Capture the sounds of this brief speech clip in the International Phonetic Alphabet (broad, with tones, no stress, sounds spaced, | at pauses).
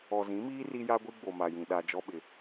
ɔ˨ z ĩ˨˦ m iː˦ r i˦ j a˦ ɡʷ i˦ ɡ͡b o˨ m a˨ j ĩ˨ ɗ a˦ d͡ʒ ɔ˦ ɓ ɪ˨